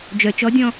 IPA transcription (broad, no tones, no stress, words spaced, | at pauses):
d͡ʒœ t͡ʃɔdʲɔ̃